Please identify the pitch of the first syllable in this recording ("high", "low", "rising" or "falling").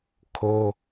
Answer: high